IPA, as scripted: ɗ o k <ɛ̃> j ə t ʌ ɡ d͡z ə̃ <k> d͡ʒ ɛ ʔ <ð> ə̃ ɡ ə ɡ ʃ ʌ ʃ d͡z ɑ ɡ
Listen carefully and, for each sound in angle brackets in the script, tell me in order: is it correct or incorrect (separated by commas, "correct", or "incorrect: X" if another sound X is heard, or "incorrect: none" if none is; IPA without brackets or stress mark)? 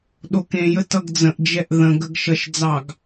incorrect: ẽ, incorrect: ʔ, correct